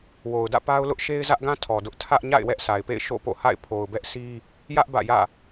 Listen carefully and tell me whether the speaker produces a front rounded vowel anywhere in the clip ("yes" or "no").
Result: no